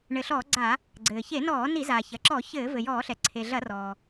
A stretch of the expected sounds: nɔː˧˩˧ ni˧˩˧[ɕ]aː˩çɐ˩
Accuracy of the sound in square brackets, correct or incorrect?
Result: incorrect